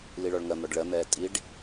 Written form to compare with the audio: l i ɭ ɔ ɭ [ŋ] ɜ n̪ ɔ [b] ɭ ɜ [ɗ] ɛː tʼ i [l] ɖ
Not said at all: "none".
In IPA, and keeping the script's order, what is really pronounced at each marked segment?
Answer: ŋ, ɖ, n̪, none

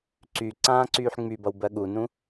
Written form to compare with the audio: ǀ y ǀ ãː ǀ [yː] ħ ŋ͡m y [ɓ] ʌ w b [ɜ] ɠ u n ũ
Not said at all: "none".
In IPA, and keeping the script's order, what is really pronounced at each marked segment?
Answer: yː, b, ɜ

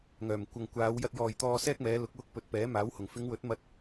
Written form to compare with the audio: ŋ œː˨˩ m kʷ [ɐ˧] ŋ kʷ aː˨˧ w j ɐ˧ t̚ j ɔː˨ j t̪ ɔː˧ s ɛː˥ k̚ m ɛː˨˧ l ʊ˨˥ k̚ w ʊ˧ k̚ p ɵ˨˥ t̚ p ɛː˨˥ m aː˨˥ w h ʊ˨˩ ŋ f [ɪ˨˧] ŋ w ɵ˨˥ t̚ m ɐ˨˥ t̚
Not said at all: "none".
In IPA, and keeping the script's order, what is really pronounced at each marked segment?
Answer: ɐ˨, ɪ˨˧

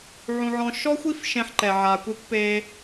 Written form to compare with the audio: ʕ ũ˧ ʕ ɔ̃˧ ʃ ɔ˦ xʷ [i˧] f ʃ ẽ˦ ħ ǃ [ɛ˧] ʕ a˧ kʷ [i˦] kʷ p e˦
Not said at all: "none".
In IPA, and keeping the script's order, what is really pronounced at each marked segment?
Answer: i˦, ɛ˧, i˦

